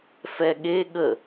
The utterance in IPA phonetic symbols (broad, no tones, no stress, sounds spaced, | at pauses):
f ɛ ɠ e ɠ ə